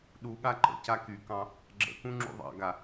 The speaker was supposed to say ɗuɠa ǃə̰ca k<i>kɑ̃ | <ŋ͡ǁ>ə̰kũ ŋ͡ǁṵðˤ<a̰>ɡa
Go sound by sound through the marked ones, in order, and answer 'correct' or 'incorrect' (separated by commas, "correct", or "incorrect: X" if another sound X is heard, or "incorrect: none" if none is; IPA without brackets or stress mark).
incorrect: y, incorrect: ɡ͡ǁ, incorrect: ɑ̰